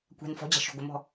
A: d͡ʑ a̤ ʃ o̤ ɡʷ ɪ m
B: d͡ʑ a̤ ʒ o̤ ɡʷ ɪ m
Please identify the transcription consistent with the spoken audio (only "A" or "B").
A